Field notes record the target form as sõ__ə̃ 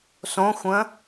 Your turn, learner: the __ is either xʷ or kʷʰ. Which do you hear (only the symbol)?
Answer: xʷ